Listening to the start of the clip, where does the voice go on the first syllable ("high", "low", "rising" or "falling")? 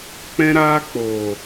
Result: high